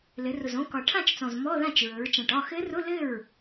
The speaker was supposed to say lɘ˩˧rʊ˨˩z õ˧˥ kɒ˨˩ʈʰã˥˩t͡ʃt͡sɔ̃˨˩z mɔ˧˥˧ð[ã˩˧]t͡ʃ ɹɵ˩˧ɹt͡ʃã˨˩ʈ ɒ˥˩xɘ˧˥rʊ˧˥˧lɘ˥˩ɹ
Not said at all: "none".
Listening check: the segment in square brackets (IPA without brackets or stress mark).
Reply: ã˥˩